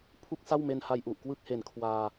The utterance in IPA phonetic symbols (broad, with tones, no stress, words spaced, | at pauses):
pʰu˥˩k̚sa˥˩wme˧n ha˧jʔu˨˩ʔkwɯ˥˩k̚he˨˩n kʰwaː˧